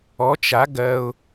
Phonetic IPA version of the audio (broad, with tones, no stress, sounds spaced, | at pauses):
ɔ˧˥ t͡ʃ a˧˥ ɡ ɜ˥ ʊ̯